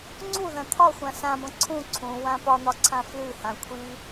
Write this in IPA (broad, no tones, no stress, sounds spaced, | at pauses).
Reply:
ŋ͡ǀ u ð ɐ̃ t̪ʰ ɒ xʷ ã s ã b ɐ̃ ǀʰ ũ ǀʰ ũ w ã p ɒ n̪ ɒ ǀʰ ã f l ʉ h ã kʷʰ i